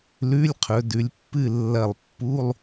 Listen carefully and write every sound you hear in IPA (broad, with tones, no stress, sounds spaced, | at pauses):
l ʉ˧˥˧ lʲ qʰ ɵ˩˧ d ʉ˩˧ lʲ pː ɨ˥˨ lː ɐ˧˩ lˠ pː u˧˥˧ lˠ